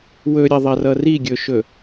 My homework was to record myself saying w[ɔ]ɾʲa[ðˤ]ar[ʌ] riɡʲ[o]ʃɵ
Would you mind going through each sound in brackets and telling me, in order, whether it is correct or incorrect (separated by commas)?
incorrect, correct, correct, incorrect